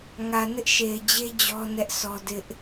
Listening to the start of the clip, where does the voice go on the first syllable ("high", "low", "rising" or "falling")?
low